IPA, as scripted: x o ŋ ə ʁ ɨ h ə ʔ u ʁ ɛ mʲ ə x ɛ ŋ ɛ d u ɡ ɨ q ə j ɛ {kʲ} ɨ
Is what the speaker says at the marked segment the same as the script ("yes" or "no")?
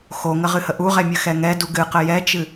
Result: no